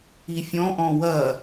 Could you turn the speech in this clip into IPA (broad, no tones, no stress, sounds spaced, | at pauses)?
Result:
i fʲ ɔ̃ ʔ ɔ̃ w ɐ